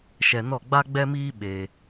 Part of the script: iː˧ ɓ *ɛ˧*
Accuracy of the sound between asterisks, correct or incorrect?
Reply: incorrect